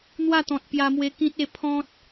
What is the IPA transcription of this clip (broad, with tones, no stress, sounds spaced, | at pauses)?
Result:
n̪ w a˥˧ t̪ ɔ̃˨ t̚ p j a˧ m w e˧ k ĩ˦ t̚ e˥˧ pʰ ɔ̃˦ t̚